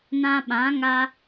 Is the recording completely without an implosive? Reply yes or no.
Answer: no